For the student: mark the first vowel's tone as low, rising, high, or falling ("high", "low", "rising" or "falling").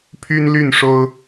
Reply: high